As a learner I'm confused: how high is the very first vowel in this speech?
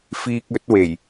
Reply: high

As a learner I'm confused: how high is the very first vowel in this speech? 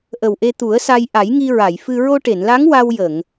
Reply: mid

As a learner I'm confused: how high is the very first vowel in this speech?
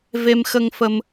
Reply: mid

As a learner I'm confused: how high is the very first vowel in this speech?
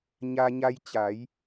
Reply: low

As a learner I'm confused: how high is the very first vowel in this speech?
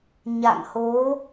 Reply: low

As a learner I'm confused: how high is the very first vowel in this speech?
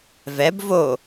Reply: mid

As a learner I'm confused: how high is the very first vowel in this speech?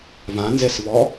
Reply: low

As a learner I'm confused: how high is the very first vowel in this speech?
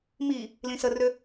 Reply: high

